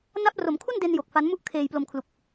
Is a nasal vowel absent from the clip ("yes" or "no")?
yes